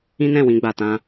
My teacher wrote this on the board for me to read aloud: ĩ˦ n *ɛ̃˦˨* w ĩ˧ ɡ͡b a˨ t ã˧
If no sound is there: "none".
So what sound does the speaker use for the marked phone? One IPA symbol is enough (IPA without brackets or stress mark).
ɛ̃˦˨